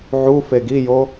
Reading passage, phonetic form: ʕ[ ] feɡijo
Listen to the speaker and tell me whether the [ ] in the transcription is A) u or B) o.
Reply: A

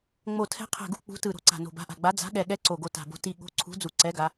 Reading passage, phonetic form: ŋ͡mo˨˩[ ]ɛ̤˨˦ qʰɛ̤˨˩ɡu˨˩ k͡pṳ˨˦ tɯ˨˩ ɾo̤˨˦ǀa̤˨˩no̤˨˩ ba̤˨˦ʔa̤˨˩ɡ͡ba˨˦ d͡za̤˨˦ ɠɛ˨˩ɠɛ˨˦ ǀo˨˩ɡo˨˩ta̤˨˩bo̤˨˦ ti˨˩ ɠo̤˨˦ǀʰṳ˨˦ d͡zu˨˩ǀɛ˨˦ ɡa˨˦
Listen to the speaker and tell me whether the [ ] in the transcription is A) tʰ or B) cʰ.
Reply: A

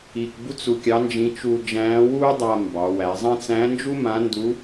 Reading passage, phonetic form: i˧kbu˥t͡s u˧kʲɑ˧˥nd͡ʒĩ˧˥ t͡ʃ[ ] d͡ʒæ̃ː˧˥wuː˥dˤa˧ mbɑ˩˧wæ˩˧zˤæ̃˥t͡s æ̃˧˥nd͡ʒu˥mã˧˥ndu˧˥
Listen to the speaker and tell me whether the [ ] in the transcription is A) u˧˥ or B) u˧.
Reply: B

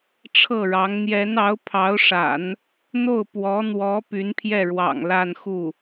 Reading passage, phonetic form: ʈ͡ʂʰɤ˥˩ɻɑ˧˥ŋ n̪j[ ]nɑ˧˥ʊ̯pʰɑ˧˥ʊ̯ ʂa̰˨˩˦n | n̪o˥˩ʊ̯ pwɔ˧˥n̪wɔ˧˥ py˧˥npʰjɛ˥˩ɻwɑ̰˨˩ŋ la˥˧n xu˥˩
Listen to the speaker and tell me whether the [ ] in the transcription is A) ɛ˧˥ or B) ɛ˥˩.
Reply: A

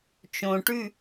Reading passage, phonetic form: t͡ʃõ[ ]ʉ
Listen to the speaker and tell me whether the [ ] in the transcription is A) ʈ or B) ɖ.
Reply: A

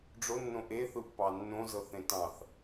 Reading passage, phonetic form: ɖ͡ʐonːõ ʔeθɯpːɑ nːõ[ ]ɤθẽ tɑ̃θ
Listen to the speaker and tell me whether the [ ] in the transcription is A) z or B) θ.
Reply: A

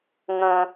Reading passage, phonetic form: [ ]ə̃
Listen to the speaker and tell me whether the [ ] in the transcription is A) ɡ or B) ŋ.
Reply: B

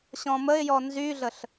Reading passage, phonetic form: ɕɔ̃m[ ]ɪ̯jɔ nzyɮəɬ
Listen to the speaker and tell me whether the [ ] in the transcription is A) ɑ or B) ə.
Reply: B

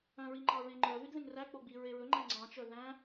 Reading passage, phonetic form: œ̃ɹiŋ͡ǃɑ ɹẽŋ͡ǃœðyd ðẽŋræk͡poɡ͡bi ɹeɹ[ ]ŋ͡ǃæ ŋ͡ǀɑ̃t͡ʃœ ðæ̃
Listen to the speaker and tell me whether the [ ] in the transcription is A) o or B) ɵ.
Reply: B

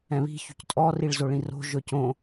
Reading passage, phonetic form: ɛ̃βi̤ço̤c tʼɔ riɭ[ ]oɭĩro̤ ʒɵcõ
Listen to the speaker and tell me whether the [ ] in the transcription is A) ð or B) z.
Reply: B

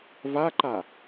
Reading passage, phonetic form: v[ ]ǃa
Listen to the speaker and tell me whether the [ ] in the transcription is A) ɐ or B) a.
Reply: B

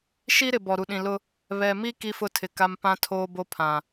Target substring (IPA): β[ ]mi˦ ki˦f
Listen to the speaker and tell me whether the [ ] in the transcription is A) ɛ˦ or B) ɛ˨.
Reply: B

